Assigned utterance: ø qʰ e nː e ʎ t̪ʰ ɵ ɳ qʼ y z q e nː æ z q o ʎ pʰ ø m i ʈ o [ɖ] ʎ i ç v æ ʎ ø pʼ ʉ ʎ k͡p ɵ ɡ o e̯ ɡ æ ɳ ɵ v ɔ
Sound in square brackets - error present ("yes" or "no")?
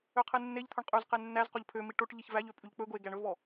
yes